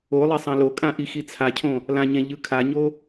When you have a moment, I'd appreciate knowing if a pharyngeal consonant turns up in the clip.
no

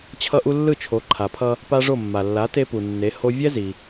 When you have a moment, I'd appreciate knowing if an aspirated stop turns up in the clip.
yes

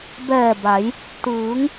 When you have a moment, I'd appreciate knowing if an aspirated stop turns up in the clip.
no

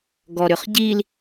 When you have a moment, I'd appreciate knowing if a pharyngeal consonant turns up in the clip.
no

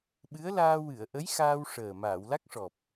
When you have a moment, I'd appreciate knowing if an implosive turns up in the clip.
yes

